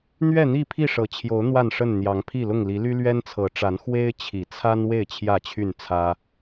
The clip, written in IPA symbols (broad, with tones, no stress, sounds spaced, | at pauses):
n̪ ɥ ɛ˥˨ n̪ i˥˨ pʰ i˥˨ ʂ ɤ˨˩ t͡ɕʰ j o˨˦ ʊ̯ n̪ w a˥˨ n ʂ ə˥˨ n n̪ j ɑ˨˦ ŋ pʰ i˥˨ l ʊ˥˨ ŋ l i˨˦ l y˦ l ɥ ɛ˦ n t͡sʰ ɤ˨˦ ʈ͡ʂ a˨˦ n x w e˦ ɪ̯ t͡ɕʰ i˨˩ t͡sʰ a˦ n w e˥˨ ɪ̯ t͡ɕʰ j ä˥˨ t͡ɕʰ y˥˨ n t͡sʰ ä˦